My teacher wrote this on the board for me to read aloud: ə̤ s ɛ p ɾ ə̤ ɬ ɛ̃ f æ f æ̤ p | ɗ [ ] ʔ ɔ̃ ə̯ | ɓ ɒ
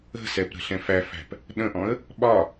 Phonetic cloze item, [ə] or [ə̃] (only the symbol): ə̃